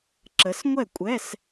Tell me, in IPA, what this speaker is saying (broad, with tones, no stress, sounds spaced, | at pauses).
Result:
ǁ ə˨˦ s ŋʷ ɛ˥˨ kʷʼ ɛ˧˥˧ s